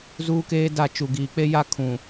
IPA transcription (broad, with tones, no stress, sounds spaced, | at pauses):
z uː˦ k eː˦ d a˦˨ t͡ʃ u˨ ɡ iː˨ k͡p e˦ j a˦ kʰ ũ˨